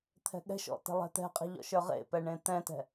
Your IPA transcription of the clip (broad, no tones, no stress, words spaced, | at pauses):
t̪ʰɛ̤ɠɛ̤ʃɔ̰ tɛ̤lˠɛ̤t̪ɛ̤qʼe̤ ʎɔ̰ʃə˞ʁḛpɛ ɳẽt̪ɛ̃tɛ̤